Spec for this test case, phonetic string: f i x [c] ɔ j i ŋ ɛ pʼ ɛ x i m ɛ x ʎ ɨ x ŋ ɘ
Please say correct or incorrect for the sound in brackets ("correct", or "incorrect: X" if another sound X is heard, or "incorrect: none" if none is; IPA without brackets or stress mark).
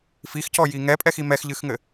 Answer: correct